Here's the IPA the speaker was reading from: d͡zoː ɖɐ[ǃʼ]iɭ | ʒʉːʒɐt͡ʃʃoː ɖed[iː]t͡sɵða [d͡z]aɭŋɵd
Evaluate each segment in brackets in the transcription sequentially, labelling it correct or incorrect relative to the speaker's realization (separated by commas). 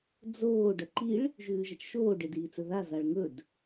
incorrect, correct, incorrect